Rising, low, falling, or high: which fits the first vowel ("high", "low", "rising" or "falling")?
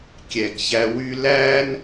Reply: low